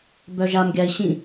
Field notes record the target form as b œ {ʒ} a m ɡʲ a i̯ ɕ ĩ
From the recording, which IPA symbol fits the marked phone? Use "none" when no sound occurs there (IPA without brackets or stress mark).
ʒ